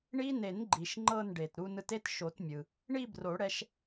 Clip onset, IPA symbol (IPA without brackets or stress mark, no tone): ɳ